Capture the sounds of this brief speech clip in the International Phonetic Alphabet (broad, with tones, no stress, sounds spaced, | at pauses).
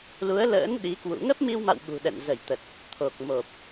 l u˨˦ ə̯ l ə̰ː˧˥ n ɗ i˨˦ k w ṵ˧˨ ŋ ə˦˥ p̚ m i˧ w m a̰˧˨ w ɓ ṳ˨˩ ɗ ɛ̰˧˨ n z ə˧˩ j t̪ ə˨˩ t̚ | t̪ʰ o˨˩ k̚ m o˨˩ p̚